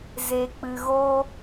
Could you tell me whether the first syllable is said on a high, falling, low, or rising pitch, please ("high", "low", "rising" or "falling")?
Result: low